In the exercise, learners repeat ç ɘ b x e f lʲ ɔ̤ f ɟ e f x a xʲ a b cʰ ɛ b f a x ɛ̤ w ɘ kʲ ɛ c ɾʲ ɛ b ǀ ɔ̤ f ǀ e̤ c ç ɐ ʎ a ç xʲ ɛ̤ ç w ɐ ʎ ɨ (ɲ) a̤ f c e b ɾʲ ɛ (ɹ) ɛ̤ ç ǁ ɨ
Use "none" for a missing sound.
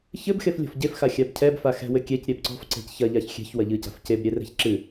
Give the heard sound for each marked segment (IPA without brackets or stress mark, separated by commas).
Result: c, r